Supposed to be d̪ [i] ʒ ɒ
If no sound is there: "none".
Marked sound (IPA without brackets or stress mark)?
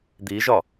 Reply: i